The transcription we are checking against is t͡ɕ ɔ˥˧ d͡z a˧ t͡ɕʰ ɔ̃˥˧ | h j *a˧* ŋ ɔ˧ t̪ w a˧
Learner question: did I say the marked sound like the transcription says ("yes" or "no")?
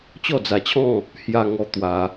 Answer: yes